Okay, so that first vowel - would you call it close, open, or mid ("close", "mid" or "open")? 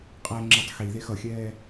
mid